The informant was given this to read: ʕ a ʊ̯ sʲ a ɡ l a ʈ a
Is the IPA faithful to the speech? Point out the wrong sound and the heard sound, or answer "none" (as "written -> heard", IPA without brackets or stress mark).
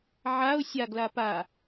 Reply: ʈ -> p